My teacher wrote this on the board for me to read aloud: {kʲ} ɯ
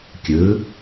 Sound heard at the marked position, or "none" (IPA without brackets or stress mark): kʲ